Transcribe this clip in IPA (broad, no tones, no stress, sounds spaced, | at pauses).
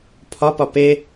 pʰ ɒ p ɒ p e